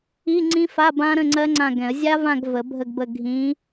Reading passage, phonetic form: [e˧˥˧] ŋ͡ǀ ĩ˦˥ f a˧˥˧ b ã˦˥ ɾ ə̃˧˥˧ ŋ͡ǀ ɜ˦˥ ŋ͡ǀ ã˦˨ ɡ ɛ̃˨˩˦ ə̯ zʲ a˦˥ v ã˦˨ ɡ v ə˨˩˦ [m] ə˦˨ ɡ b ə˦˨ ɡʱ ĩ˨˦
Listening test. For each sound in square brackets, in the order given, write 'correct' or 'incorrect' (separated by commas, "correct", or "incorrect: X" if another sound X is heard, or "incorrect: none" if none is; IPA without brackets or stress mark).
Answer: incorrect: i˧˥˧, incorrect: bʱ